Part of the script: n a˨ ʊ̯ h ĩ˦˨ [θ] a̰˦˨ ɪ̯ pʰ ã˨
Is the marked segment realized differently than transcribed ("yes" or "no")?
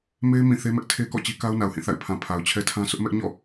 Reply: no